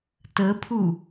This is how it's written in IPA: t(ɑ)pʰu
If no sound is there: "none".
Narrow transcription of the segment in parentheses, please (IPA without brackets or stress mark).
ə